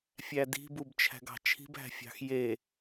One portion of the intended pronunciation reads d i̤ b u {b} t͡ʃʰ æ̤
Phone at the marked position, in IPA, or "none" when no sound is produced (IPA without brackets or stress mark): b